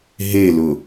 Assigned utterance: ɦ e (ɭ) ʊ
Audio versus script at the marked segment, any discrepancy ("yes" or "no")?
yes